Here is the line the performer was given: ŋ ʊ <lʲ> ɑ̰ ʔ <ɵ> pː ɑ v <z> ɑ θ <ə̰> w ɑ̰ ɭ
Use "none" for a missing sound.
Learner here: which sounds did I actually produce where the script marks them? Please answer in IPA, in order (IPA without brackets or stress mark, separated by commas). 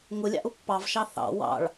lʲ, ʊ, ʃ, ɑ̰